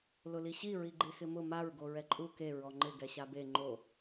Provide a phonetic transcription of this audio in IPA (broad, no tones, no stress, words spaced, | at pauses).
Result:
lʊliɕi ɹiɡ͡ǃexɪmʊ maɹ ɡoɹɛǃʼu ke ɹɔŋ͡ǃɪ ɡɛɕabe ŋ͡ǃo